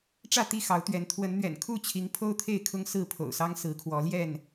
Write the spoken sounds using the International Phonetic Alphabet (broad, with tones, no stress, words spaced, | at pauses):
ʈ͡ʂä˥˨t̪i˥˨xɑ˨˦ʊ̯t̪ɥɛ˨˦n t̪ʰwə˨˦nn̪ɥɛ̰˨˩nkʰu˥˨t͡ɕʰi˨˦ŋ pʰo˦ʊ̯t̪ʰe˥˨ɪ̯kʰʊ˦ŋ sɹ̩˥˨pʰo̰˨˩ʊ̯sɑ˦ŋ sɹ̩˨˦kʰwɔ˨˦ljɛ˥˨n